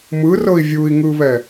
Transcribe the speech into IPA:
m ɯ r ɤ i̯ vʲ u i̯ ŋ ɯ β ɛ

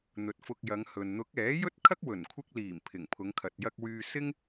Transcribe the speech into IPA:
n̪ ɵ˨ t̚ f ʊ˧ k̚ j ɐ˨˧ ŋ h ɵ˨ n n̪ ʊ˨˥ k̚ ɛː˨˥ j ɵ˥ t̚ kʰ ɐ˥ k̚ w ɵ˨˩ n kʷʰ ɪ˧ k̚ l iː˨˩ m pʰ ɪ˨˩ ŋ pʰ ʊ˨˧ ŋ kʰ ɐ˨ t̚ j ɐ˧ k̚ w yː˧ s ɪ˥ ŋ

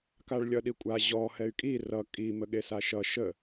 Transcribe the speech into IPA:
k a ɭ lʲ ʌ ɗ i kʷʼ a ʑ ɔ h ɛ y̯ kʼ i r ʌ kʼ i m ə ɠ e s a ʃ ʌ ʃ ə

